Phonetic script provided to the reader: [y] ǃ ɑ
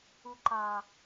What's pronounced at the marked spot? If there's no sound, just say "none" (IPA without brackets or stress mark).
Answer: u